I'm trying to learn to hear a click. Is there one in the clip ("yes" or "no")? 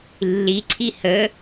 yes